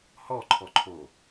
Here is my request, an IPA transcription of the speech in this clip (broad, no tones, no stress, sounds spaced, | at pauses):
h ɔ ǃʰ ɔ ǃʰ o